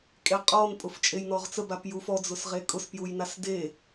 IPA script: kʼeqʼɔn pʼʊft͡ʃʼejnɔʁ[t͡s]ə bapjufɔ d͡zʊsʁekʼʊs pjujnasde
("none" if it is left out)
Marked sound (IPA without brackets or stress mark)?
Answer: t͡s